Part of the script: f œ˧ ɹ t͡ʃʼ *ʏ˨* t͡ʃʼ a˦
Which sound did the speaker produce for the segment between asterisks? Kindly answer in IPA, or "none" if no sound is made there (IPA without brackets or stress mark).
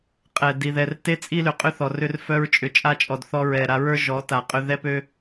ʏ˨